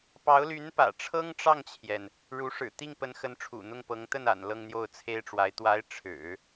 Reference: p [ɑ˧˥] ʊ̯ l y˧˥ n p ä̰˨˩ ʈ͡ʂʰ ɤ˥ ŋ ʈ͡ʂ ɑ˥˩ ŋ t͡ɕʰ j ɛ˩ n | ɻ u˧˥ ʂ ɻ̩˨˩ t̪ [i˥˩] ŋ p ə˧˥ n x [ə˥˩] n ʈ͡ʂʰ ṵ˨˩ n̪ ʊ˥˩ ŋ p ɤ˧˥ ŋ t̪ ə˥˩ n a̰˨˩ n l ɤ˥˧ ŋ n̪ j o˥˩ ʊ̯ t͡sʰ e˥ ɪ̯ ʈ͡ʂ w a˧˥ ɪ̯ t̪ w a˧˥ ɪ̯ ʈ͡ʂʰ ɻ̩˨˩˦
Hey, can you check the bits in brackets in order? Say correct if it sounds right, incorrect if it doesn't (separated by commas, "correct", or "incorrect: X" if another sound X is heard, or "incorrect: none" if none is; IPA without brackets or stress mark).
correct, correct, incorrect: ə˧˥